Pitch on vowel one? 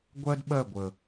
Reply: high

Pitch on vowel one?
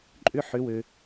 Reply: high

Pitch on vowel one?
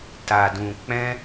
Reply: low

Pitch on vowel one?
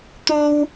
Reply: high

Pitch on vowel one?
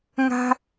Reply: high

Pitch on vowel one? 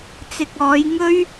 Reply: low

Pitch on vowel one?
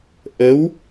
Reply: rising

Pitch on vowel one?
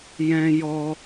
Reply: high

